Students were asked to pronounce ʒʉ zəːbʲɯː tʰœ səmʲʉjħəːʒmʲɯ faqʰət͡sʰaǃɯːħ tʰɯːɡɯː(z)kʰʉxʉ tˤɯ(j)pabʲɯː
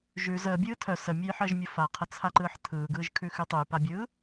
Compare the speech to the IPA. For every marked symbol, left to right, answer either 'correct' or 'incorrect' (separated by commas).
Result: incorrect, correct